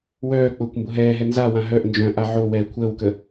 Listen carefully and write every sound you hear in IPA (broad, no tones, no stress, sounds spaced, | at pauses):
w œː k͡p ʊː kʷ m b ʊ ɦ ɛː ɦ ɛ n z a w ã ɦ œ ʔ n d͡ʒ œ̃ ʔ a ʕ o w ɛː kʷʰ əː w k ə